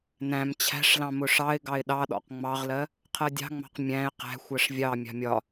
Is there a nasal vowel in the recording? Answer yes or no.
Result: yes